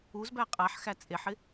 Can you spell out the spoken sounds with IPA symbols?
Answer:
u z b æ qʼ a ħ x æ t͡sʼ e ħ ɪ

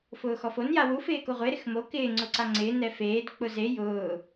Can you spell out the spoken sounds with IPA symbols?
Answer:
f ʊː x ɔ f o n j a w u f ɪː k o ʁʷ e ɾ ɪ x m o k ɪː ŋ͡ǀ ʊ ǀ a ŋ͡ǀ ɪː n ɛ f eː d k͡p ʊ z e j ʊː

